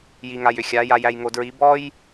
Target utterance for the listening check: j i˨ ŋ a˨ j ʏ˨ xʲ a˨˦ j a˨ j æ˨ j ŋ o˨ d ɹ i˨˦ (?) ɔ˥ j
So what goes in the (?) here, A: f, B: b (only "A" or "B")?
B